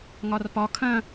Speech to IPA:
ŋɒrpɒ kʰɐ̃

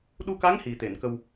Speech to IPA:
ɗu˧ka˧˥ŋ hi˨˩t̪e˨˩˨nkə˧w

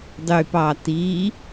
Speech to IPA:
dˤypɑti

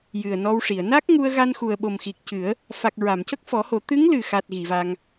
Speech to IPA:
jɨ˨˩ə̯nɔ˧wʂi˨˩˨ə̯ na˦˥k̚ ŋu˧ə̯ɣa˧nxu˨˩ə̯ ɓo˨˩mxi˨˩k̚cɨ˨˩˦ə̯ | fa˨˩k̚ ɹa˨˩˨mcə˦˥k̚fɔ˨˩˦ho˨˩˦ t̪ɨ˧˥ŋ lɨ˨˩xa˨˩t̚ ɣi˨˩˨va˧ŋ

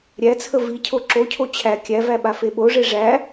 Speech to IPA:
ɾʲæt͡sʰə vicʰo ǁocʰo t͡ɕʰæ kʲævæ ɓafeɓoʐe ʐæ

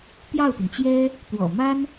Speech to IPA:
t̪jɑ˥˩ʊ̯t̪y˩nt͡ɕjɛ˥ | t̪wɔ̰˨˩ma˥n

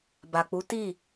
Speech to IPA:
ba˨k͡pu˨˦ ti˦˨

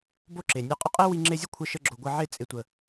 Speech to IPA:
bo˦˨ǁe˨nʲe˧ qʼə˦qʼe˦wi˧ ŋ͡ǁe˧zʲə˦ kʷʰə˧ʃə˧ɡ͡ǁo˨ ɡʷə˧ʕɪ˦˨ t͡sʼɪ˨tʷə˨

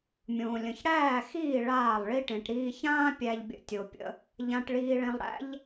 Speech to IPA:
mʲõː˨lʲə̃˨ç ɽæː˦˨xiː˦˨ ɭaː˦˨lˠ ɭi˧ʈẽ˨ʈɾiː˧çãː˦ pʲæ˧ʎbʲə̰˧tʲo˨pʲə̰˧ | ʎã˧ʈɭiː˧ɭẽ˧lˠɽæ̰˦ʎ

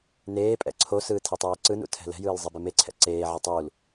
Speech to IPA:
neː pʼɛ̰ǀʰosɯː tʰitˤeːǀɯnṵ tʰɛ̤lɛ̤jɯːl zˤibemeǀʰɛ̰ ǀeːʕɛ tˤul

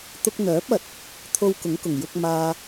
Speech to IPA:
t̪ʊ˧k̚n̪œː˨˥p̚ɐ˨t̚ | t̪ʰo˧wkʊ˨˥ŋkʊ˨˩ŋ jʊ˧k̚maː˧

